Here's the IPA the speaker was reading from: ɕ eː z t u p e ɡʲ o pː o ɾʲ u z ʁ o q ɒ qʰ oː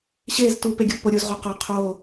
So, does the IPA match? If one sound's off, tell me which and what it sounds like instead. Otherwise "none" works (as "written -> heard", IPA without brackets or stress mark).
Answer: none